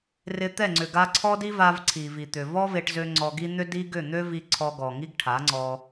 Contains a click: yes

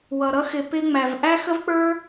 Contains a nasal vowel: no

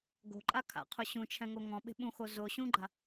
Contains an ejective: yes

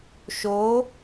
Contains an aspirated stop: no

